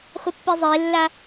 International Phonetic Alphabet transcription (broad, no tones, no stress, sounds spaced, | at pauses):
χʷ ɘ pː i zˤ e lː a